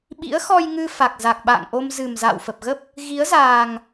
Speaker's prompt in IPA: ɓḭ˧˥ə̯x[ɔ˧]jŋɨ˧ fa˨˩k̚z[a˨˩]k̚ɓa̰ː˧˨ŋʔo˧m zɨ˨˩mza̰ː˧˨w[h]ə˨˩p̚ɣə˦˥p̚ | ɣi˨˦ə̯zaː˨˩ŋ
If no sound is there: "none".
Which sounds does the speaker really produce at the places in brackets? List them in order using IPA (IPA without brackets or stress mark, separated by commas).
ɔ˧, a˨˩, f